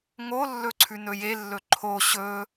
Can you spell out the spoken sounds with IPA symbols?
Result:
ŋolːɵ ǀʰʉnɵjelːɵ ǃʰo ɕɵ

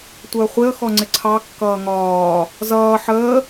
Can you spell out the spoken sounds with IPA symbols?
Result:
tʷəːχʷɪə̯ xɔŋ͡ǀɪǀʰɑ kːʌːŋɒː | zʌː ħəː

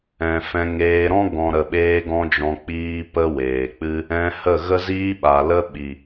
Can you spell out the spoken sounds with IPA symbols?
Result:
ɛ̃˨fɛ̃˧ ŋeː˧ɾɔ̃˦ ɡɔ̃˨ ɾə˨ɓeː˧ɡɔ̃˧ d͡ʒɔ̃˧k͡piː˦pə˦ weː˨k͡pɨ˦ | ɛ̃˧hə˦˨ɣə˦ ziː˦ɓa˨lə˦ ɓi˨

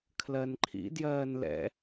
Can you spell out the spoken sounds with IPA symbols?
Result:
kʰlɜnǃʰḭ djɜːnlɛ̰

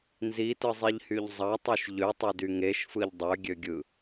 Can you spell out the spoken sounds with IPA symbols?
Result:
nzitɯzˤiʎhyʎ zˤɑtˤuʃ ʎøtˤødy ŋeʃfɯʎ dˤøɡʲøɡʲɯ

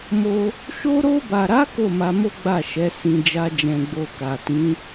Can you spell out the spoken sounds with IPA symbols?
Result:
mo˧ | ʃo˧ɾo˧ba˨ɾa˨˦ ko˦˨ma˧mo˦ ɡ͡ba˦˨ʃɛ˨˦ sĩ˧ d͡ʒa˧d͡ʒɛ̃˨ ɡ͡bo˨ka˨tĩ˨˦

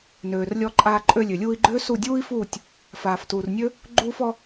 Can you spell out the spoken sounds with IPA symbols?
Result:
nøː˨r lʲɔ˧ǃʼaː˧ǃʼø˧ lʲø˨lʲuː˧i̯ɡ͡ǃøː˦ su˦˨dʲuː˦i̯fuː˦˨tʲ | faː˨ftuː˨rnʲø˦ | ɡ͡ǃuː˧fɔ˧

